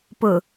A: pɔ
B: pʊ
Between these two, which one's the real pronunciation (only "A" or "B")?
B